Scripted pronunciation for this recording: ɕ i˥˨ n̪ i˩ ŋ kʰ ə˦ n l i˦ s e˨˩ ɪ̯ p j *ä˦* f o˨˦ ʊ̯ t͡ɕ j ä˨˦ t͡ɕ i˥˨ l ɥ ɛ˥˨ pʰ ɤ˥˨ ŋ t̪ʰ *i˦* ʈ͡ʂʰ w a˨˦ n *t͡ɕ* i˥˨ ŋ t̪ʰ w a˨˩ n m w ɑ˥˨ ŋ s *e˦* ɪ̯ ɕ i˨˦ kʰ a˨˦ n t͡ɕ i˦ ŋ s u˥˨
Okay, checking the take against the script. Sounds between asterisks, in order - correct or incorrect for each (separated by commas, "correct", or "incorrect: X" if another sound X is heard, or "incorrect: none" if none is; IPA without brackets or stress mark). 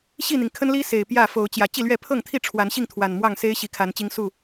incorrect: ä˥˨, incorrect: i˥˨, incorrect: ɕ, correct